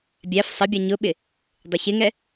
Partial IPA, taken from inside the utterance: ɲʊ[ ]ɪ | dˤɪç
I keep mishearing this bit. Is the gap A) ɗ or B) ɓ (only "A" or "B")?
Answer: B